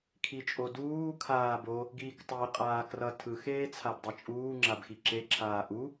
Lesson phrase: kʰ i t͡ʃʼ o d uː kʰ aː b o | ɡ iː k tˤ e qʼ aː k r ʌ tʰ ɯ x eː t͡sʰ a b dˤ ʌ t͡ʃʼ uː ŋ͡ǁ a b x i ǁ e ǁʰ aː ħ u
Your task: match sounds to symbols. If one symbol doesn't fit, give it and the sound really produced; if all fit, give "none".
ħ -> ʔ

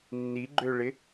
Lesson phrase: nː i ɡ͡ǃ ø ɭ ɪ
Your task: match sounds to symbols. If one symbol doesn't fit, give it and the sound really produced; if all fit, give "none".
none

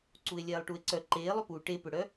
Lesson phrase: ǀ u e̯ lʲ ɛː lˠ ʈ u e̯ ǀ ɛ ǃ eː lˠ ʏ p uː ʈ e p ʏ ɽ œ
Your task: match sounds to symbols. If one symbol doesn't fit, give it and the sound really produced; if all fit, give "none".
ɛ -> œ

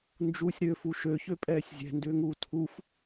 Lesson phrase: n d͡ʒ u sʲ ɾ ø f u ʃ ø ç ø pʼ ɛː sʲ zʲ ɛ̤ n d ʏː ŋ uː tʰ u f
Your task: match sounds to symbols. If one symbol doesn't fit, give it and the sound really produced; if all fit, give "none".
none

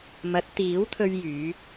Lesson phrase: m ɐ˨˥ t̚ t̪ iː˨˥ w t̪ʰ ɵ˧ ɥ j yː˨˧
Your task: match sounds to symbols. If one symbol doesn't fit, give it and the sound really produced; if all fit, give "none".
none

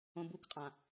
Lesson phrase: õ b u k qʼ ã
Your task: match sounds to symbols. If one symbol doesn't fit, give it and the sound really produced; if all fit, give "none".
none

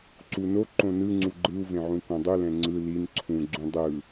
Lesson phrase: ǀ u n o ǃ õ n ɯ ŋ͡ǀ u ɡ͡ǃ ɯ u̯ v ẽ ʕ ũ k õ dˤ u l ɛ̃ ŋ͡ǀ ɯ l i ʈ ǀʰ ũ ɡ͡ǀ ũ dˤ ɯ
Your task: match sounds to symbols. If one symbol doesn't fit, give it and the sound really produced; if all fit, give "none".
ʈ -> n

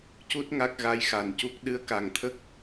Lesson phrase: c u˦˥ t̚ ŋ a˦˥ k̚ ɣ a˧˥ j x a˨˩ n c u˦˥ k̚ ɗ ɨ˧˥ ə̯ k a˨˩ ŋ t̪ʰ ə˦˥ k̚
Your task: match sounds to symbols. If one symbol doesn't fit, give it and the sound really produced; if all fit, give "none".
none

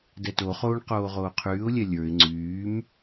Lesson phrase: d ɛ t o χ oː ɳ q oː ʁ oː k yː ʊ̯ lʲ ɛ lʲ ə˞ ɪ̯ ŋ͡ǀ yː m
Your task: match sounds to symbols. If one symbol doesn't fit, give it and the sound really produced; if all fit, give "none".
k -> qʰ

